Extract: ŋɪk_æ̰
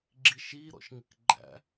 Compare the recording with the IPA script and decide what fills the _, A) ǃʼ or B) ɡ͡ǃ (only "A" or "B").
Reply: B